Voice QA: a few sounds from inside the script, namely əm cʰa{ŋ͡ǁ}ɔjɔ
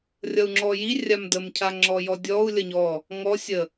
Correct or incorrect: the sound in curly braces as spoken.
correct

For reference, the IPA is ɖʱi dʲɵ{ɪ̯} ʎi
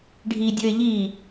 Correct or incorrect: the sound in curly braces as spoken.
correct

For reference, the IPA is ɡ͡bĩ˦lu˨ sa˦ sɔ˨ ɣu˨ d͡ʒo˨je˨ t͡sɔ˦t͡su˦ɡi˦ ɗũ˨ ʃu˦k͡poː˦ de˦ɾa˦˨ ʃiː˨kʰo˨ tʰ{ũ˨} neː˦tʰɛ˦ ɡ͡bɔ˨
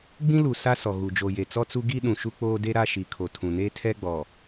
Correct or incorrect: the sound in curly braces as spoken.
correct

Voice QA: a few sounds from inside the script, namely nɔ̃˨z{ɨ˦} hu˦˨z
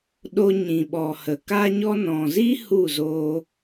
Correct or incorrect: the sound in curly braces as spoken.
incorrect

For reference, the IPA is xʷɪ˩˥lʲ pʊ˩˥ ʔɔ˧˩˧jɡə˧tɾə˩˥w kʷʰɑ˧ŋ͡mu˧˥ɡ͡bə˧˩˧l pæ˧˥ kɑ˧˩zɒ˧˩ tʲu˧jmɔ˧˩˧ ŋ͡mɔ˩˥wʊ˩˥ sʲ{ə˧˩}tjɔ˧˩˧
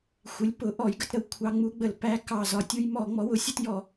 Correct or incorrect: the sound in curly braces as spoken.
incorrect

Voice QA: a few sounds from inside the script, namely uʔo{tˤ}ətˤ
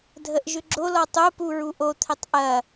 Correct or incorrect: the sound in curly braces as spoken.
incorrect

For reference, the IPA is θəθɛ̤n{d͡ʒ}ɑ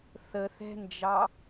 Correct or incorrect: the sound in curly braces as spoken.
correct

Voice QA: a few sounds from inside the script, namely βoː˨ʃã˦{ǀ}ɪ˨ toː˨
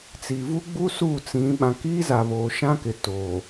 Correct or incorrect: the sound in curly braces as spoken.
incorrect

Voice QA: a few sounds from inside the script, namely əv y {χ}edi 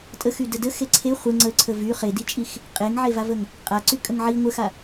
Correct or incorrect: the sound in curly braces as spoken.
correct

